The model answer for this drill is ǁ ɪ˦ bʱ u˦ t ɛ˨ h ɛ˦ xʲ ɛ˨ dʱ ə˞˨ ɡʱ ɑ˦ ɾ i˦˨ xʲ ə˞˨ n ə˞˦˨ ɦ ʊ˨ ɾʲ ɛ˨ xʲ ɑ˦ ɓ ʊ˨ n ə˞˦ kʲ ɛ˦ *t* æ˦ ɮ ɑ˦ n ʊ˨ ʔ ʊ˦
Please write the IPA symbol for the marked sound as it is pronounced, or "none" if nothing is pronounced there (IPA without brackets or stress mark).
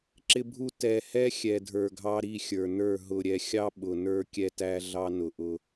t